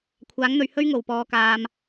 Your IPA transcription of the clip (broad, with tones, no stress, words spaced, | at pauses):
kʷʰaː˨˥ŋn̪ɵ˨ɥ hɵ˥ɥ ŋo˨˩w pɔː˨kaː˨m